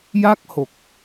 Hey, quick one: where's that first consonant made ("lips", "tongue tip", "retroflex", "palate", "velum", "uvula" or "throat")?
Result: palate